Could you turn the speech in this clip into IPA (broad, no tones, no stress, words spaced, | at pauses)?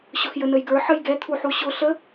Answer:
ɕʊxjənəjɡə˞ ħəjɡɛt̪ʰuħu ɕʊ ɬə